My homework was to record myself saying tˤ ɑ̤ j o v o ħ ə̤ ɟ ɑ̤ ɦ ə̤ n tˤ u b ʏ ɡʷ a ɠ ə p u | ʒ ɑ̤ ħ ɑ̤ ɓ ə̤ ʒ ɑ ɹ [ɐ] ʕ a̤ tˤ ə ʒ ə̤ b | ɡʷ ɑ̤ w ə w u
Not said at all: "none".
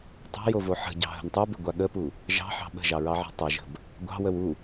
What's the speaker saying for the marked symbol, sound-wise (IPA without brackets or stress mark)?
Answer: ɑ